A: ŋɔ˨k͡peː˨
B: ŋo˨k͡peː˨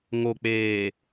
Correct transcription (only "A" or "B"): B